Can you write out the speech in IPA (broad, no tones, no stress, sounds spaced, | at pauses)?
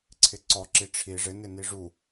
ǀʰ ɪ ǀ ɔ ǁ i ʈ͡ʂʰ i ʐ ɪ n ɪ n i ʐ u